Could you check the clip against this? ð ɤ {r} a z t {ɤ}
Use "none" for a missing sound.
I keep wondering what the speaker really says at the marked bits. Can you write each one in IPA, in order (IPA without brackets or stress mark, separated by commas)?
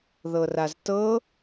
r, ɤ